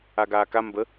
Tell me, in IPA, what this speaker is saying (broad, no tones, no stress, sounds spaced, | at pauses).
a ɡ aː k a m b ə